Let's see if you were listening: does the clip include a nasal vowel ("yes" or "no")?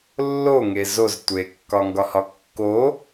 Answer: no